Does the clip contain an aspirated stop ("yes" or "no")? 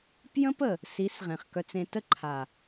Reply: yes